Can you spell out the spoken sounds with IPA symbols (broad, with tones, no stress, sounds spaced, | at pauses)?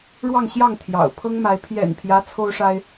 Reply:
ɻ w ɑ˥˧ ŋ ɕ j ɑ˥˩ ŋ t̪ʰ j ɑ̰˨˩ ʊ̯ pʰ ɤ˥ ŋ m a˧˥ ɪ̯ pʰ j ɛ̰˨˩ n pʰ j ä˧˥ t͡sʰ o˥ ʊ̯ ʂ a˥ ɪ̯